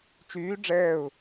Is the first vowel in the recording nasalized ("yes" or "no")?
no